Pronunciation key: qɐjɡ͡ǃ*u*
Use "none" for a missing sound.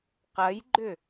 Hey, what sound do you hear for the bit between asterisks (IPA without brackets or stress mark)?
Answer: ʏ